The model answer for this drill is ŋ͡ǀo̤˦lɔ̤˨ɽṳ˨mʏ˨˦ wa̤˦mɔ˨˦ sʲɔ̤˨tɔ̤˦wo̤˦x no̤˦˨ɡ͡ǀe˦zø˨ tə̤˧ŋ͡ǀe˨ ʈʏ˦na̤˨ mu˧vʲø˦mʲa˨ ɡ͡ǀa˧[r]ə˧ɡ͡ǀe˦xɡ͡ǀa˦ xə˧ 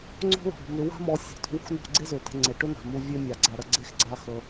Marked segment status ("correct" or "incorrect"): incorrect